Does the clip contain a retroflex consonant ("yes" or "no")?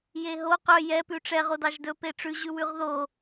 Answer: yes